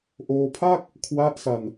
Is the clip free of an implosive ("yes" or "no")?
yes